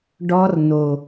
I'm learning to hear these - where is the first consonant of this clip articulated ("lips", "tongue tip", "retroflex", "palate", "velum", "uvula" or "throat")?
retroflex